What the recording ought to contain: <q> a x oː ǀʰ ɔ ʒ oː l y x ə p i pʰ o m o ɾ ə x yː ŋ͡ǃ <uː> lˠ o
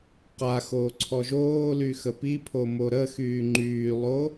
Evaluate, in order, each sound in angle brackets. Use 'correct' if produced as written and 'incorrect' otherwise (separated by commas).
correct, incorrect